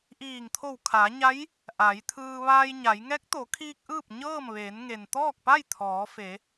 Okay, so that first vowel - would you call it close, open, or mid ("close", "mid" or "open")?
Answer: close